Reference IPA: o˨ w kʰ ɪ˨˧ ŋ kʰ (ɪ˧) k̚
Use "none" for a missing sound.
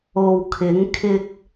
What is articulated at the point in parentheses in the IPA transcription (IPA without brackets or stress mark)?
ɪ˧